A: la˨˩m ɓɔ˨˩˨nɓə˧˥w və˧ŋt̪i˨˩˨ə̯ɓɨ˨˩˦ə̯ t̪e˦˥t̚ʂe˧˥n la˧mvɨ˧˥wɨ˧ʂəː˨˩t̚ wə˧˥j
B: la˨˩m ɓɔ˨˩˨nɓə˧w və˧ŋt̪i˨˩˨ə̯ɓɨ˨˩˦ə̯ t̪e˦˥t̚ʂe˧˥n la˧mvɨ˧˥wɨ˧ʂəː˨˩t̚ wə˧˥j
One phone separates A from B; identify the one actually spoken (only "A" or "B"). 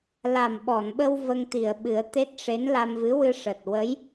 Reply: B